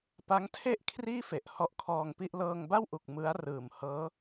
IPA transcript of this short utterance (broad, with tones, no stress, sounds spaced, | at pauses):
p a˦˥ ŋ tʰ e˥˩ ʔ kʰ r iː˥˩ f e˨˩ ʔ h ɔ˦˥ ʔ kʰ ɔː˧ ŋ p i˥˩ ʔ l ɤː˧ ŋ b a˥˩ w ʔ u˨˩ k̚ m ɯ˦˥ a̯ r ɯː˨˩ m h ɤː˦˥